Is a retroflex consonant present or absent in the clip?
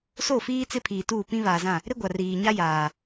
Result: absent